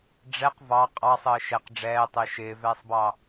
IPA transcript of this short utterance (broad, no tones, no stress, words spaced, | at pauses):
ɖ͡ʐɛq vɑ qʼɑsˤəː ʃɛq ɖ͡ʐɛːtˤəɪ̯ ʃɪːvɛːsˤbɑ